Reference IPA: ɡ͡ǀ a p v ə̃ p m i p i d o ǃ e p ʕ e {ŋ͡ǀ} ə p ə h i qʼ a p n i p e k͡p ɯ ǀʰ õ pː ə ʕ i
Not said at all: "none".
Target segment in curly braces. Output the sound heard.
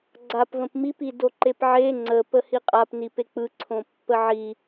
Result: ŋ͡ǀ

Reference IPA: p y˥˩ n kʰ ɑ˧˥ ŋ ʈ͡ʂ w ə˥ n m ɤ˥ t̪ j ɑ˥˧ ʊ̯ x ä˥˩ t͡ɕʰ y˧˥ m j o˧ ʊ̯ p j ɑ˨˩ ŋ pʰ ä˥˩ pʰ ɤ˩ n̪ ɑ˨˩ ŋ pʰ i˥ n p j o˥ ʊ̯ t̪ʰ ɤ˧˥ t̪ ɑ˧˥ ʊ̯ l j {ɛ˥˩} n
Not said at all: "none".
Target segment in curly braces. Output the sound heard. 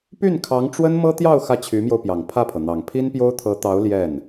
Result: ɛ˥˩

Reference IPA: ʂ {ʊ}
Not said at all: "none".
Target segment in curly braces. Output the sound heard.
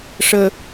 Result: ə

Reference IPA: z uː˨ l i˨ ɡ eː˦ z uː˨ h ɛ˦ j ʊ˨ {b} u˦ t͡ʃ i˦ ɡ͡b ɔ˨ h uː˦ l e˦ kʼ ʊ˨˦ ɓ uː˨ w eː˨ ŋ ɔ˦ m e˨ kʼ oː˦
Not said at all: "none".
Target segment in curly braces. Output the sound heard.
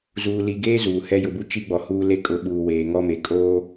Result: b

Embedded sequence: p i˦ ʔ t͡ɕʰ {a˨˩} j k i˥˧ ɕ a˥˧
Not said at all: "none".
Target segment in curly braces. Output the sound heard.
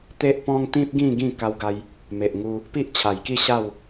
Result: a˨˩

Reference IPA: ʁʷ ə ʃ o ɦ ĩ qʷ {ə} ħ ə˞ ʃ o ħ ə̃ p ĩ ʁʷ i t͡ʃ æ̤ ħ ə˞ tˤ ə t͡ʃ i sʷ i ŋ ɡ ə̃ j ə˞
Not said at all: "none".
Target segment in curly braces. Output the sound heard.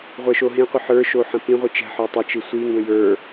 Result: ə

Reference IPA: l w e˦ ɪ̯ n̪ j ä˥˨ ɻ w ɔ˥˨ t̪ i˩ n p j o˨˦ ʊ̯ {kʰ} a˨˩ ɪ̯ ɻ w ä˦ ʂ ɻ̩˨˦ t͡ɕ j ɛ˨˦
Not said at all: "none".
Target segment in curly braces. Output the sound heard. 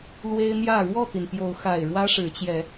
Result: x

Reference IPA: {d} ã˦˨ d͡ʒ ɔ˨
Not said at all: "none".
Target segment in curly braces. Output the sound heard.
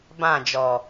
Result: b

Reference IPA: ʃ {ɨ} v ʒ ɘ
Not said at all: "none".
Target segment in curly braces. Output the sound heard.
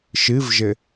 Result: ɨ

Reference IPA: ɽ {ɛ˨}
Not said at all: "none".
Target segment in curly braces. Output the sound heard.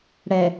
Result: ɛ˨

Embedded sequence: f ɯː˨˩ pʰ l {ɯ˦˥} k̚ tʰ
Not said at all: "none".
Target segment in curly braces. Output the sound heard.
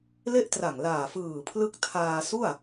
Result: ɯ˦˥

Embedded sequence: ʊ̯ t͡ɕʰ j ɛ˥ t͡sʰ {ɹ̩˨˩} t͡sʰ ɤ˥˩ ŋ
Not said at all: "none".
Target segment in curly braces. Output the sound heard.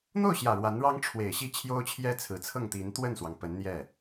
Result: ɹ̩˨˩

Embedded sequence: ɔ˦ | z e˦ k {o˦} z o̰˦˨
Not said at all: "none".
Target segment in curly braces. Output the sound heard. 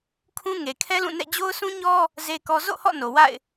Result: ɔ˦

